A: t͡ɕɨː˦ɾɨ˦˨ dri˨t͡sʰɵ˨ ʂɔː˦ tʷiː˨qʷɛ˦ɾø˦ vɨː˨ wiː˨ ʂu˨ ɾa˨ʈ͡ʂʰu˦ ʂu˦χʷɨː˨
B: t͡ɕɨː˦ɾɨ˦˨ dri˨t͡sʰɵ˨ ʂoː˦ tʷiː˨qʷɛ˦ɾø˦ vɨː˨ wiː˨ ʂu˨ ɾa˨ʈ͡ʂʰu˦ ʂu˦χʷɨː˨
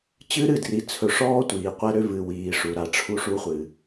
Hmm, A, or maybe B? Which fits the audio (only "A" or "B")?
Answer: A